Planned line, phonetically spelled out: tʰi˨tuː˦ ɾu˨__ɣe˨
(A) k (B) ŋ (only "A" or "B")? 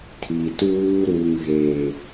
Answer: B